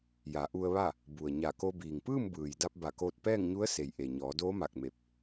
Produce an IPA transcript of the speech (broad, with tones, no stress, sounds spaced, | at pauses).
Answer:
j a˩˧ ʔ u˧ ə̯ ʋ a˥˨ | b u˩ ə̯ ɲ a˧˩ k o˧ b iː˩ ŋ p ɯː˥˨ m b ɯː˩ j d a˧ p̚ b a˧˩ k oː˧ t̚ p ɛː˥˨ ŋ ɲ u˧˥ ə̯ s e˩ j ʔ e˩ ɲ ɔː˩˧ d oː˧˥ m a˧˩ k̚ m e˧˩ p̚